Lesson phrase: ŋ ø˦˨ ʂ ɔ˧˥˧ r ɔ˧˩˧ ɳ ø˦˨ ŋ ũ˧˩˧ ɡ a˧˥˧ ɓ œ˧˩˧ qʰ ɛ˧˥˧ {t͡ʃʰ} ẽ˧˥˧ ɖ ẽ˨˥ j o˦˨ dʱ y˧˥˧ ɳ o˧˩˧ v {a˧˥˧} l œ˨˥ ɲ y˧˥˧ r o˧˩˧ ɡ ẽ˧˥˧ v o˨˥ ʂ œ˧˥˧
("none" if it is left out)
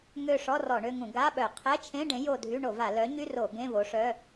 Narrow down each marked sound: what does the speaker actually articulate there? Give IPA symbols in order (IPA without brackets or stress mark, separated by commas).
t͡ʃʰ, a˧˩˧